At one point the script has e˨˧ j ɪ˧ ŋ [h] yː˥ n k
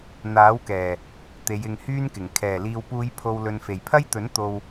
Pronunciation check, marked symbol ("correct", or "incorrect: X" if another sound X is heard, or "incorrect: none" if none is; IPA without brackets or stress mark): correct